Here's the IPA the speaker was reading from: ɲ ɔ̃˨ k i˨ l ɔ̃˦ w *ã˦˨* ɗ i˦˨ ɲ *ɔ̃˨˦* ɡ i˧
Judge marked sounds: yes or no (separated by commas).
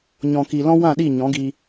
yes, yes